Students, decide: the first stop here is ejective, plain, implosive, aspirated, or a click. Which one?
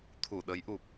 aspirated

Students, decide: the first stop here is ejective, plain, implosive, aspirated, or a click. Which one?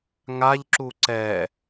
click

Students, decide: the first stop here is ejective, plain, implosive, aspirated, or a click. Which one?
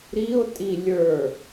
ejective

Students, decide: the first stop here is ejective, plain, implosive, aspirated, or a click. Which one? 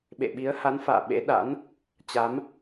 implosive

